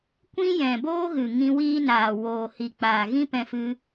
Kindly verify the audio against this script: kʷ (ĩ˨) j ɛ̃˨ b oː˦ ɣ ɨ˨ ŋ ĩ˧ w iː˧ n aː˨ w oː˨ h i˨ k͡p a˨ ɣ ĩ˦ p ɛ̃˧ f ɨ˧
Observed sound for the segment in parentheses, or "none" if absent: ĩ˦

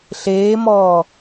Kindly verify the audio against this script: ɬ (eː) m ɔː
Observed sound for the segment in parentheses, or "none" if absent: eː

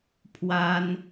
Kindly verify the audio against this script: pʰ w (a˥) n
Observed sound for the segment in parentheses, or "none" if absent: a˥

